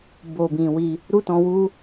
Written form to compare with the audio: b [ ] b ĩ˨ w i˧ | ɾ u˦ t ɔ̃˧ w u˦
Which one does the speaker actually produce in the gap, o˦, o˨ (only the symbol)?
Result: o˨